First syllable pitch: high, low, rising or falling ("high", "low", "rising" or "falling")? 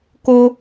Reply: high